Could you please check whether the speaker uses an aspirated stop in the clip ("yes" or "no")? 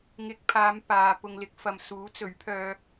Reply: yes